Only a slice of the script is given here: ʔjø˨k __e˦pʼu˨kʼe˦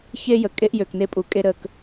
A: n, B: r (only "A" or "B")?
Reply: A